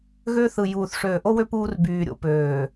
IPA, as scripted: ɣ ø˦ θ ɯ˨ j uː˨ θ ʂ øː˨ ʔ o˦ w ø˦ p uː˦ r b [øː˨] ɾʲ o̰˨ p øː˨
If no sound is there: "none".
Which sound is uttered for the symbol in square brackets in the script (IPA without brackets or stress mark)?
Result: yː˨